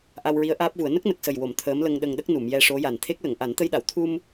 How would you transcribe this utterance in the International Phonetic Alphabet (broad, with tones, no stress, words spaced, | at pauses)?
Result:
ʔa˧wɹi˧˥ə̯ ʔaː˦˥p̚vu˨˩˦ə̯ nə˦˥k̚nə˨˩k̚sə˨˩jwo˨˩˨m t̪ʰəː˧˥mlə˧ŋɗə˧ŋɗə˦˥k̚ nu˨˩˨mjɛ˧ʂo˧˥ja˨˩n t̪ʰe˦˥k̚lə˨˩˨ŋ ʔa˨˩˦nt̪ə˧jɗa˨˩˨w t̪ʰu˧m